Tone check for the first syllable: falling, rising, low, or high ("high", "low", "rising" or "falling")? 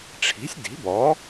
rising